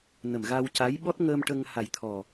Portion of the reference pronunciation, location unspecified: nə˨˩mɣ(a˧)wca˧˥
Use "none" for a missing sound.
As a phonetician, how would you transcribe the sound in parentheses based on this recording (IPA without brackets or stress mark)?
a˧